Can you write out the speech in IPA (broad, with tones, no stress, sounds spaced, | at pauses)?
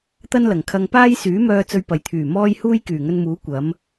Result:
t̪ ɐ˥ n l ɐ˨˩ ŋ kʰ ɐ˧ ŋ p aː˥ j s yː˨˥ m œː˧ t͡s ɵ˧ ɥ p ɐ˨ j t̪ʰ yː˨˩ m ɔː˥ j h uː˥ j k yː˨˩ ŋ ɵ˧ n m uː˨˥ kʷ ɐ˨˥ m